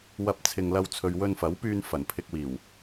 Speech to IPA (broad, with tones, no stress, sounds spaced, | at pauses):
w ɐ˧ p̚ t͡sʰ ɪ˨ ŋ l ɐ˧ w t͡sʰ ɵ˨ ɥ w ɵ˧ n f ɐ˨˥ w p yː˧ n f ɐ˨˩ n pʰ ɪ˧ k̚ w iː˨˩ w